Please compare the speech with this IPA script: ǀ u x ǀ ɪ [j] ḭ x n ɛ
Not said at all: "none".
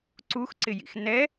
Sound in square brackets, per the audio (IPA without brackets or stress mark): j